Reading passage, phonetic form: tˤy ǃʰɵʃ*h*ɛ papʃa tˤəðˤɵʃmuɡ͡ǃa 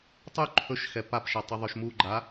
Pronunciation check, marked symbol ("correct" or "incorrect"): incorrect